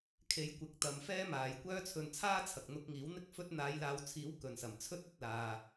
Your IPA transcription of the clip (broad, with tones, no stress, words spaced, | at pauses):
kʰe˨˧jkʷɪ˨˥k̚ t̪ɐ˧m fɛː˥maː˨jkʷœː˥t͡sʰɵ˧n t͡sʰaː˥t͡sʰɐ˨k̚ n̪ʊ˧k̚ŋiː˨˥w n̪ɪ˥k̚fɵ˥t̚ n̪aː˨˧jlaː˨˧wt͡sʰiː˨˥w kɵ˨nsɐ˨˩mt͡sʰɵ˥t̚ ɵ˧t̚laː˨